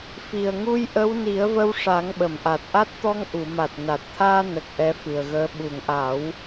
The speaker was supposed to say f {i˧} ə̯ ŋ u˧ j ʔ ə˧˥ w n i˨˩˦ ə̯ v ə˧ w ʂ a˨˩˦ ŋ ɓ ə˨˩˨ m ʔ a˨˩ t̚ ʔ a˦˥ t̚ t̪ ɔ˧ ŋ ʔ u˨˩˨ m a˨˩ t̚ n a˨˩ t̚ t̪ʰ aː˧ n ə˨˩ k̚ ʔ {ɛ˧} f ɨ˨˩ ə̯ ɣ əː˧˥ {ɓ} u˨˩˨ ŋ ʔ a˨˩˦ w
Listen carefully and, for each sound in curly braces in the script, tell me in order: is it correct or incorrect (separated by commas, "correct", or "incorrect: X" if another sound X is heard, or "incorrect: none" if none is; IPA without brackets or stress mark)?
incorrect: i˨˩, correct, correct